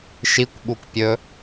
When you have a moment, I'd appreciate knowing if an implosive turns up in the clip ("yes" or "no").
yes